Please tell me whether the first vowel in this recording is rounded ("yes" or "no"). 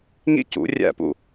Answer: no